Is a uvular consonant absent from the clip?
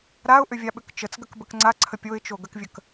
yes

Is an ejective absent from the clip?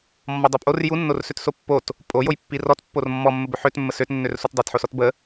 no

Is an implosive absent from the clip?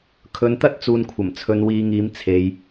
yes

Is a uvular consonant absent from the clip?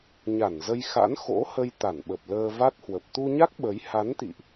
yes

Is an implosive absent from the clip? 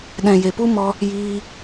no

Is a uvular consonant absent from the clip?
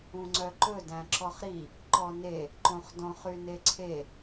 no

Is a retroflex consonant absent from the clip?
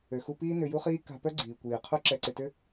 yes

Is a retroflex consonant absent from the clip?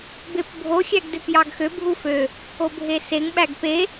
yes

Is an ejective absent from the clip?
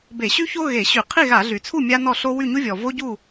yes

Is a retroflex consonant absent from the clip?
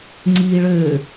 no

